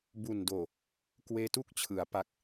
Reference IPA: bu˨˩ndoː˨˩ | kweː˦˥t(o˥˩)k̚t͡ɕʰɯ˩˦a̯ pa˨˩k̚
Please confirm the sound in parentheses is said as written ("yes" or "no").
no